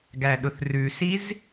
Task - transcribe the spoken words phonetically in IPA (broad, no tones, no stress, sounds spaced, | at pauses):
ɡ æ ɗ ʊ θ r ʉ s i z